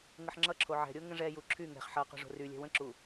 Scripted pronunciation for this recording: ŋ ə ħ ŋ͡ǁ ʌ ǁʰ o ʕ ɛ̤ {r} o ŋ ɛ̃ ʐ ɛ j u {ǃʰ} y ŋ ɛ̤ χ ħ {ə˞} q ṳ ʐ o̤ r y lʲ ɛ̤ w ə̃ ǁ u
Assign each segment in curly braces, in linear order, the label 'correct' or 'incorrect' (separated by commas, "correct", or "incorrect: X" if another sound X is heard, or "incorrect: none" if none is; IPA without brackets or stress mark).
incorrect: ɾʲ, incorrect: ǁʰ, incorrect: ʌ